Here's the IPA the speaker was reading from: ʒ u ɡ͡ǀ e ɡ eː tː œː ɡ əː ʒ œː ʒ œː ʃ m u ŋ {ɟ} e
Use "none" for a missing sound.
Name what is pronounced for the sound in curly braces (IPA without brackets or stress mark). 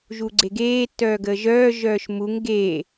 ɡ